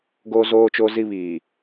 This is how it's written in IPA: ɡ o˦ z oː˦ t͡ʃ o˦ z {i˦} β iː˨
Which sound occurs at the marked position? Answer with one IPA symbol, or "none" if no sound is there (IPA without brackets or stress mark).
i˦